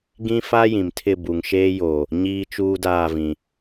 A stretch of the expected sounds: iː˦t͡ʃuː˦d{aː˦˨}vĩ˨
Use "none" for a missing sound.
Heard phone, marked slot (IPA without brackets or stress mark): aː˦˨